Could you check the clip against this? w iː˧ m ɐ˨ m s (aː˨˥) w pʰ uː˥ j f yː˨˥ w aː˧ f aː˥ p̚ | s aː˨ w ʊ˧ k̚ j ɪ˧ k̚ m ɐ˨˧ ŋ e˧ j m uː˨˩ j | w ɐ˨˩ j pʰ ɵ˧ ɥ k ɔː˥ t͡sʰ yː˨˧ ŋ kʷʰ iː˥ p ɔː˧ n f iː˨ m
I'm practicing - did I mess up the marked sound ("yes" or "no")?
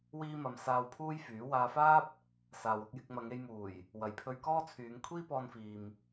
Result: yes